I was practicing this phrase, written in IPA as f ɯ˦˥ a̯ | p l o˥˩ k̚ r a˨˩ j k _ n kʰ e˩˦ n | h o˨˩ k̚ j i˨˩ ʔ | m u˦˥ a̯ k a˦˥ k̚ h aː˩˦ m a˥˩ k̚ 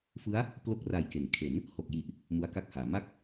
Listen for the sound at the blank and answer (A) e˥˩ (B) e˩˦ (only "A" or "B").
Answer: B